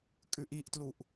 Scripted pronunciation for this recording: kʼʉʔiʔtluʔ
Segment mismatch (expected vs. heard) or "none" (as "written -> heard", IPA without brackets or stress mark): none